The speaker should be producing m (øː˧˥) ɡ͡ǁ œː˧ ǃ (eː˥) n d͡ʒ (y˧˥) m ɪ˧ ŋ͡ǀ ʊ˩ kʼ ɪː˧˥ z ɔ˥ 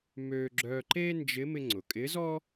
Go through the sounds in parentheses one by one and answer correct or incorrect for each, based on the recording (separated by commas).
incorrect, correct, incorrect